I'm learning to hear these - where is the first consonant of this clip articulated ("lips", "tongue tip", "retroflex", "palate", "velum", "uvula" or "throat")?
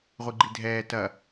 uvula